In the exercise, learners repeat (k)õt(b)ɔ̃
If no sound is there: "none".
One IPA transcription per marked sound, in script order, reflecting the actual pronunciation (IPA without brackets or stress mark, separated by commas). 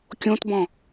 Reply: kʲ, b